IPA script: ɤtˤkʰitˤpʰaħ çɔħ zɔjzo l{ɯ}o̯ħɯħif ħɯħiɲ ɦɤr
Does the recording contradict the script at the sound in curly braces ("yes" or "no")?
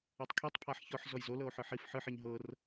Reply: yes